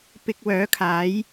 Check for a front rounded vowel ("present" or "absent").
present